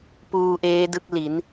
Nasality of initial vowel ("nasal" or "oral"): oral